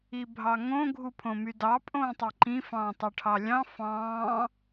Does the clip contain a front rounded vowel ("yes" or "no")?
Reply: yes